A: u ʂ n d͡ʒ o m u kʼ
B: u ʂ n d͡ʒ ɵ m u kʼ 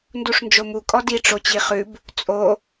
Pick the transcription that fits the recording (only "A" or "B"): A